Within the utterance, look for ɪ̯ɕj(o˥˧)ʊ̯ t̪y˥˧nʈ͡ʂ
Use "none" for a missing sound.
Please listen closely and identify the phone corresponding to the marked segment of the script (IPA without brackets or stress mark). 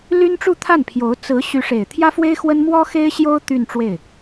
o˥